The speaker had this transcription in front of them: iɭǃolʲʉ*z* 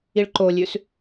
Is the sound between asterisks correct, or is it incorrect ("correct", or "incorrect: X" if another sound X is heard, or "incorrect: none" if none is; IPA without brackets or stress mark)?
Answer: incorrect: s